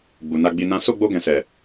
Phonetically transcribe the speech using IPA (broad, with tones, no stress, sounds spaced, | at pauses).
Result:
ɡ͡b u˨ n a˧ ɡ͡b i˧ n ã˦ s o˦˨ ɡ͡b o˧ ɡ ɛ̃˨ s ɛ˨